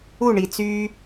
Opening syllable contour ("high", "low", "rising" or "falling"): falling